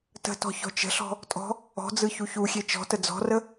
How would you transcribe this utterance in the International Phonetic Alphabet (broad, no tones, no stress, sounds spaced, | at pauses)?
t ə̤ t ɔ̤ ç ɔ̤ t͡ʃ ə̤ ɬ ɔ̤ | tʼ ɔ̤ | ɔ̤ d͡z ɯ ç u ç u xʲ e t͡ʃ ɔ̤ t ə d͡z ɔ̤ r ə